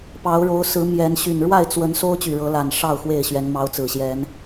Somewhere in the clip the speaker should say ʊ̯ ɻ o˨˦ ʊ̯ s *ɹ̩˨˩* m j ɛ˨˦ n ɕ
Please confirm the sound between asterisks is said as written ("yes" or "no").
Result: no